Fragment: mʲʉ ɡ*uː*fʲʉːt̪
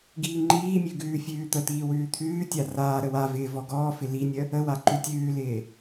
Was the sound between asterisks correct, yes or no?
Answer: no